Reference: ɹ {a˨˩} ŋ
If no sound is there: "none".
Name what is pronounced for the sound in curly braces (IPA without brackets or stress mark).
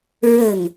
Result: ə˨˩